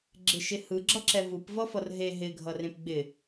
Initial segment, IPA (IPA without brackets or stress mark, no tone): ɡ͡ǁ